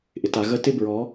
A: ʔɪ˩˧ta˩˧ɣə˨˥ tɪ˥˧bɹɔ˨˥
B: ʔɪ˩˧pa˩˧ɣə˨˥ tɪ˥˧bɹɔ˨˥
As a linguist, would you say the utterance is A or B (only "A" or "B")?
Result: A